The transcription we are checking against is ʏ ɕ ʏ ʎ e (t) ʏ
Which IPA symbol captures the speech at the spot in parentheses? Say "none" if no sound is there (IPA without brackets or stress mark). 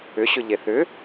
θ